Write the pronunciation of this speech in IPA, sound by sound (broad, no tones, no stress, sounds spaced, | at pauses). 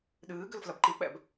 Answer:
ɗ ɨː ɡ ɘ l f l ɐ b ǃ i k͡p ɛ̰ b